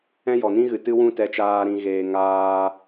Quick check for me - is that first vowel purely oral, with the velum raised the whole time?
no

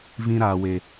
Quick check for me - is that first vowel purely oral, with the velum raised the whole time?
no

